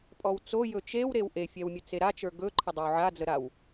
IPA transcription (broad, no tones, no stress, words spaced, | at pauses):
pʼɔwt͡so jɵt͡ʃew ɾewʔefʲɛwmʲɵ t͡seɾat͡ʃə˞ ɡɵǃʰə dˤɛwʕad͡zə ɾaw